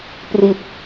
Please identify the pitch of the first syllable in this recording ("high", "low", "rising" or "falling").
low